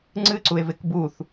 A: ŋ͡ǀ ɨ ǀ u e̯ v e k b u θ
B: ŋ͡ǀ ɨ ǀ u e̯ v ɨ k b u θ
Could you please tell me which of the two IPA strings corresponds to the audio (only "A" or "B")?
A